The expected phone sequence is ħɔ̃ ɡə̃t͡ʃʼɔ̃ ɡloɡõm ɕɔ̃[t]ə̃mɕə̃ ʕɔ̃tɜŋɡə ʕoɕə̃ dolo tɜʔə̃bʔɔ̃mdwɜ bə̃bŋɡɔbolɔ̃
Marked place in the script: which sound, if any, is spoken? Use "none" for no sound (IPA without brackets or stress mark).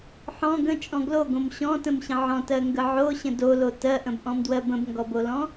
t